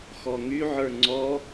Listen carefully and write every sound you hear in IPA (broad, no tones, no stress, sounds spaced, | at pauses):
x ɔ ŋ y ʕ ə˞ ŋ͡ǀ ɔ